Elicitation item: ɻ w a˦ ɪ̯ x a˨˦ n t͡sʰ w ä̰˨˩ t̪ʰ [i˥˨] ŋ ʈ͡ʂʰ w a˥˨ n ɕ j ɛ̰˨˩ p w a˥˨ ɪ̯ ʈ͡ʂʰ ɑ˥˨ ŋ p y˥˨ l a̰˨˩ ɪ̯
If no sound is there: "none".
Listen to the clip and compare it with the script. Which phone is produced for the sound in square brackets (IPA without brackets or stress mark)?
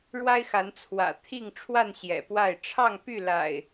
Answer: i˥˨